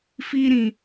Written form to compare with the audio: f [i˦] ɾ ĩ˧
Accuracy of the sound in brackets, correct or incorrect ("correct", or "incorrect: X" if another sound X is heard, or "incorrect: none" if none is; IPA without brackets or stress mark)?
correct